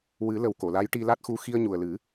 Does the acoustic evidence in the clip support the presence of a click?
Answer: no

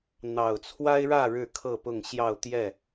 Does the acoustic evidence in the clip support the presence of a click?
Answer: no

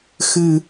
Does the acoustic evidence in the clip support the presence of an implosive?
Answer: no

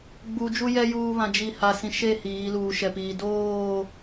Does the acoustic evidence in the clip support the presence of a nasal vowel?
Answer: yes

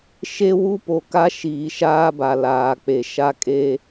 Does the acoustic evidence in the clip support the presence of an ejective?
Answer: yes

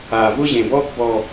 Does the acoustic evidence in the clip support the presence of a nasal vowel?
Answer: yes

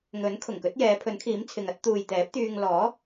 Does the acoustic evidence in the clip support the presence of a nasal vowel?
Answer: no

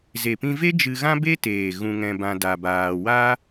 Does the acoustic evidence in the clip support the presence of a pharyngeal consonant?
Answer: no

